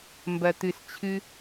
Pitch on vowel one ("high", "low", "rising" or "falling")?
low